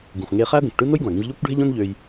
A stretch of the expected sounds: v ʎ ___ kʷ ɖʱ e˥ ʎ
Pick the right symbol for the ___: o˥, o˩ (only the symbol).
o˥